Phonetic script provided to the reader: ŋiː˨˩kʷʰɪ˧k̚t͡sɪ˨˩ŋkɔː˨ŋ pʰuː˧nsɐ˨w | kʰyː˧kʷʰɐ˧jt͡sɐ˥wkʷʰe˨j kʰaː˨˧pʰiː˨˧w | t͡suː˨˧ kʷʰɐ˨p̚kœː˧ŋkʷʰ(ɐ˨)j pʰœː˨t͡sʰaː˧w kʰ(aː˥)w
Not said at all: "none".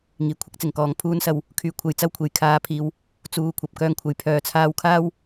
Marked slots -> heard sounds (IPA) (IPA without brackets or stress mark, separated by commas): ɐ˨, aː˥